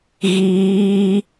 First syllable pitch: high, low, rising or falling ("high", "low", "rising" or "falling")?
high